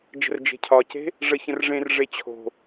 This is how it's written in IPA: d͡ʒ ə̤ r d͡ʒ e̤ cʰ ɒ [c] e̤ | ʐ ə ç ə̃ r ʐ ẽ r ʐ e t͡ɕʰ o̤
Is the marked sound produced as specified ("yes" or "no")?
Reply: yes